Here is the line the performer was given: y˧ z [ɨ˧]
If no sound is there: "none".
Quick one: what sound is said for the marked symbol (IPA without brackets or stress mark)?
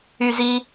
i˧